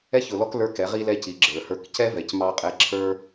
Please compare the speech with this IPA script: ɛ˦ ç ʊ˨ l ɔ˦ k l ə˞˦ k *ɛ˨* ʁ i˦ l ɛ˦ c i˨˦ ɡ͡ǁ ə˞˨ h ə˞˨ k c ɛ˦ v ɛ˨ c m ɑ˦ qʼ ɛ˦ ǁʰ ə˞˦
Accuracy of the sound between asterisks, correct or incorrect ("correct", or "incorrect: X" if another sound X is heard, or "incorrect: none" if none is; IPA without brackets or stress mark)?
incorrect: ɛ˨˦